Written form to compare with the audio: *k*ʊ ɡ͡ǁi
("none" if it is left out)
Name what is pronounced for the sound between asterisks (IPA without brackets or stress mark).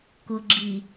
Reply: k